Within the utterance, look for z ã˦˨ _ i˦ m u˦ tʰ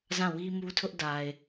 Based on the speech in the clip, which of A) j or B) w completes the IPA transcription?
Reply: B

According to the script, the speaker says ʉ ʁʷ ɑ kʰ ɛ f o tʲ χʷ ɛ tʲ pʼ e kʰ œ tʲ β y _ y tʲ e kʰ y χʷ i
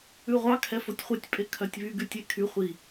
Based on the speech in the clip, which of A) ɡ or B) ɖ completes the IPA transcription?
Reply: A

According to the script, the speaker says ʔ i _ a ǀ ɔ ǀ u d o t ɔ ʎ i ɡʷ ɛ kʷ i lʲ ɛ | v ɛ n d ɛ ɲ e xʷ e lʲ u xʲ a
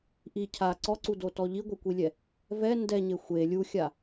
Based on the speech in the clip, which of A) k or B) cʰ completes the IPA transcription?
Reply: B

